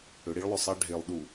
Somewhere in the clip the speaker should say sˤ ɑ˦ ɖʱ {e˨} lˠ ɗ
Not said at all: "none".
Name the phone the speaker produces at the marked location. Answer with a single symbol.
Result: e˨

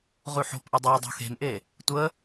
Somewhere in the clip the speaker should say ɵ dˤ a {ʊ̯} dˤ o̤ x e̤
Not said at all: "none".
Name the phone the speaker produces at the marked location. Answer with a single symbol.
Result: ʊ̯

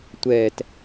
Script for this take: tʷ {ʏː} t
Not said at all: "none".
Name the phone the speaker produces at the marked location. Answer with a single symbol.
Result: ɛː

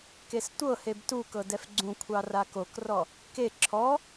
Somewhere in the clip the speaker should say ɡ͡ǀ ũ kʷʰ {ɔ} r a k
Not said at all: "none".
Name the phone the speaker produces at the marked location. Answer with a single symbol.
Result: ɑ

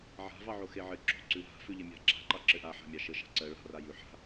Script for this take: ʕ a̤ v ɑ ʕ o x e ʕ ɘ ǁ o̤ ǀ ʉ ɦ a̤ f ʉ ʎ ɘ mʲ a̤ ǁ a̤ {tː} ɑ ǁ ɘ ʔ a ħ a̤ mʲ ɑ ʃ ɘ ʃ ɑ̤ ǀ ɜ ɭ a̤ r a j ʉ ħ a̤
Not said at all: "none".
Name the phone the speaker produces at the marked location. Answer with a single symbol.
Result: ǃ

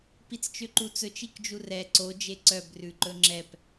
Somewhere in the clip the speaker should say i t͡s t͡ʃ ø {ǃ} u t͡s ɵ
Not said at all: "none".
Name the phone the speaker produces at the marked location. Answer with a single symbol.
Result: ǃ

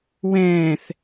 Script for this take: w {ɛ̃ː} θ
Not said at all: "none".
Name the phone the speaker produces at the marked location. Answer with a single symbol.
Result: ɛ̃ː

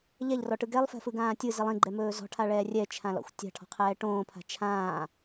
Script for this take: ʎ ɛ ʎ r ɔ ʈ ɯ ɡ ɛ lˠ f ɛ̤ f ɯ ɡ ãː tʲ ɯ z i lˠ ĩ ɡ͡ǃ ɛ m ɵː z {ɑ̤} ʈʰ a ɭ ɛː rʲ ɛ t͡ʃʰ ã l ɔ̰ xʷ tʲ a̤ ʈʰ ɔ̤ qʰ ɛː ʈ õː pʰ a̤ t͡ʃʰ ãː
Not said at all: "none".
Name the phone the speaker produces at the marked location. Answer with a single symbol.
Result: ɔ̤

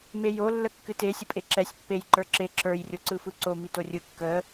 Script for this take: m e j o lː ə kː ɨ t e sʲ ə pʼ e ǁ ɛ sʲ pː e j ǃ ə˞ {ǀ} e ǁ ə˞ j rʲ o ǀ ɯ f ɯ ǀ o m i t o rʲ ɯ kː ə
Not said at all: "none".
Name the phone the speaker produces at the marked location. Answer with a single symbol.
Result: ǁ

